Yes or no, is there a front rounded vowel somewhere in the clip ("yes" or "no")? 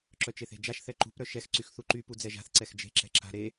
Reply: yes